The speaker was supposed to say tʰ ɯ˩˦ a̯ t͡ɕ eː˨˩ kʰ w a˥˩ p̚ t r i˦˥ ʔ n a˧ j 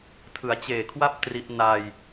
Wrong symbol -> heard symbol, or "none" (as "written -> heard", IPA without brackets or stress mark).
none